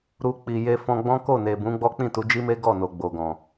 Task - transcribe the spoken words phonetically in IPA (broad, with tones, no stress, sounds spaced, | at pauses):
ɾ u˧ k͡p i˨ j e˧ f ɔ̃˧ ɡ͡b ɔ̃˦ k o˦˨ n e˨ b ũ˨˦ ɡ͡b ɔ˦ k͡p ĩ˦˨ t u˨˦ d͡ʒ i˦ m e˦ ɡ ɔ˦˨ n o˨ ɡ͡b o˨ ɡ ɔ̃˨